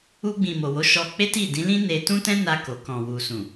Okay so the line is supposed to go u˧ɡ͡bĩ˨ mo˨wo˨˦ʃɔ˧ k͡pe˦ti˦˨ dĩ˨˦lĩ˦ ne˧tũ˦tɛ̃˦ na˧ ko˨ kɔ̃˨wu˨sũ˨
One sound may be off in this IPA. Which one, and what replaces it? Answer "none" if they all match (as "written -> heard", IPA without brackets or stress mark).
none